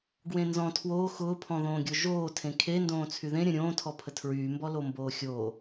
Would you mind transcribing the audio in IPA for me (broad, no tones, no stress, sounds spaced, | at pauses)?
ɡ w ẽ n z ɔ̃ tʰ w oː x ʊː pʰ ɔ̃ ð õː ɡʲ o ʒ oː tʰ ẽ kʰ e n d õː t͡sʰ y ð ẽ ɾʲ ə̃ ɾʲ õː tʰ ɔ pʰ ə tʰ ɹ yː m b ɔ l o m b oː xʲ oː